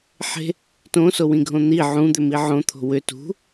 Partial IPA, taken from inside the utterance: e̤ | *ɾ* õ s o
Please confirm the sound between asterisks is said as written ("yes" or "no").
no